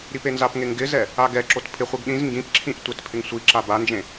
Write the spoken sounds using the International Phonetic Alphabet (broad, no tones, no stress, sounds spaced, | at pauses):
ɾ i p e n z a p ŋ e ŋ ɡ ɪ z ɛ | a ɡ ɛ ǁ o t pʰ ɪ χʷ i ɡ ɗ ĩ z ŋ ɡ ĩ p ǁʰ ĩ ʔ tʷ e t pʰ ɪ ŋ sʷ i ǁ a b a n d͡ʒ ẽ